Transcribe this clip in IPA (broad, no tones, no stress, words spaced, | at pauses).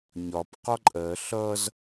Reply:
ɲɒp qɒǃʼɜ ɬʌz